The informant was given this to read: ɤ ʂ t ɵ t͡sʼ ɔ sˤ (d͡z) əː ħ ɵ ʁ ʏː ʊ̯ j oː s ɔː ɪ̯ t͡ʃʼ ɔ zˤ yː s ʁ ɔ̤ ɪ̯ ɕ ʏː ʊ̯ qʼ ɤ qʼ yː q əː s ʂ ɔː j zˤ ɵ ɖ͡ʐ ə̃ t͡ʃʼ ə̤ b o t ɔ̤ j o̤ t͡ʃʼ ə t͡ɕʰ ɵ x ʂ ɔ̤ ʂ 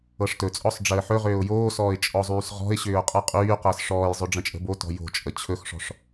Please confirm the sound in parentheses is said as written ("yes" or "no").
no